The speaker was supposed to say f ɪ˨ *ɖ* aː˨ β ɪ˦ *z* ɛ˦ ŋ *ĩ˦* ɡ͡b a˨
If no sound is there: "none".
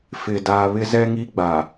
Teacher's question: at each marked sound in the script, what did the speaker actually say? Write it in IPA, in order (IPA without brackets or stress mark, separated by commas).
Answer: d, z, i˦